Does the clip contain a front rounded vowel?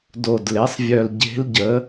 yes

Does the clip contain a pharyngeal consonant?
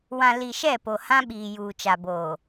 no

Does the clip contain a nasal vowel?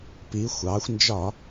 no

